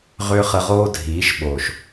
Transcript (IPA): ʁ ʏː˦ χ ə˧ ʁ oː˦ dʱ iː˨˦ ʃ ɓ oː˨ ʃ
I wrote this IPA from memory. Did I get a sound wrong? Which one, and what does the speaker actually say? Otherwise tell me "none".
none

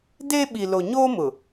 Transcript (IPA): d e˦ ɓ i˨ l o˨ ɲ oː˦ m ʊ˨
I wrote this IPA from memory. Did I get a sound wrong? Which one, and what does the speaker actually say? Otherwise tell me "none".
none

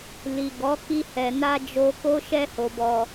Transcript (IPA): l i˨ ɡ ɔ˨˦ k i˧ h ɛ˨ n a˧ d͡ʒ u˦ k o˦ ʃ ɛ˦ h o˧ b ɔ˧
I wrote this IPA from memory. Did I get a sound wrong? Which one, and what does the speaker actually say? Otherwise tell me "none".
u˦ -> o˦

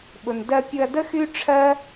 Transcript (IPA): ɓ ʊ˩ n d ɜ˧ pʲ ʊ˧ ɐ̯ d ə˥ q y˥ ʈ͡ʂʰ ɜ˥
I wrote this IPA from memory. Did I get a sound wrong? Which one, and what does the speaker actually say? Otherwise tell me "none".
q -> x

